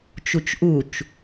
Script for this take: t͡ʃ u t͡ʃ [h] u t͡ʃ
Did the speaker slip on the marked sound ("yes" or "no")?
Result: yes